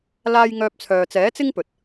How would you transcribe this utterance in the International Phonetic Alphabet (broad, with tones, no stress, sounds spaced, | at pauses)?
l aː˥ j ŋ œː˥ p̚ t͡sʰ œː˧ t͡s ɛː˨˥ t͡s ɪ˥ ŋ p ɵ˨ t̚